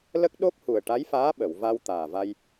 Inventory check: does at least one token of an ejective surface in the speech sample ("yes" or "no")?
no